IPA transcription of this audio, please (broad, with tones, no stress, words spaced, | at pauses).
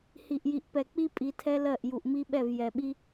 hi˨ʔji˨ʔpɛ˨k͡pi˦ pʼi˧tʰɛ˦lɜ˦˨ʔ ju˨ʔmi˦ɓɛ˦˨v jɛ˨ɓi˦